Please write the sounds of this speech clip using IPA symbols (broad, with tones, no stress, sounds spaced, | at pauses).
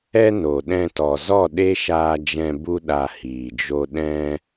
ɛ˦ n o˨ ɗ ɛ̃˧ t ɔ˨ z ɔ˦˨ ɗ e˦ ʃ aː˧ d͡ʒ ɛ̃˧ b u˦ ɗ a˧ h iː˨ d͡ʒ o˦ ɗ ɛ̃˦